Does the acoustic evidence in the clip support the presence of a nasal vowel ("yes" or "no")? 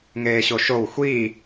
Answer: no